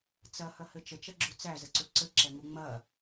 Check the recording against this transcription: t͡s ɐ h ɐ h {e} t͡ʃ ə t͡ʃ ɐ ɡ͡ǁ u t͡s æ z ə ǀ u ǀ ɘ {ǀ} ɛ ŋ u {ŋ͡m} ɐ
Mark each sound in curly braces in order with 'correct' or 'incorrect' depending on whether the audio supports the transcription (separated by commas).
incorrect, incorrect, correct